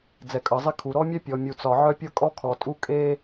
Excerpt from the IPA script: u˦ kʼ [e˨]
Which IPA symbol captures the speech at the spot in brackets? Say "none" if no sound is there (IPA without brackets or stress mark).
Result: e˦